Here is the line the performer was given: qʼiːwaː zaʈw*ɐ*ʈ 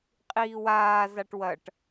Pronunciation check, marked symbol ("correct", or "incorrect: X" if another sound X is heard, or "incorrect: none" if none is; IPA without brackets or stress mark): correct